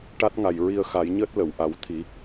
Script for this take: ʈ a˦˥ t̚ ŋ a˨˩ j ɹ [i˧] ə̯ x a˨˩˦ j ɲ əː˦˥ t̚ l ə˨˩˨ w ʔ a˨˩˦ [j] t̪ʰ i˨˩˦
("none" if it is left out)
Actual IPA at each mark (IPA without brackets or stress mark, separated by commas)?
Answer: i˧, w